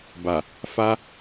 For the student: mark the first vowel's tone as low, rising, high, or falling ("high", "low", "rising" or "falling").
low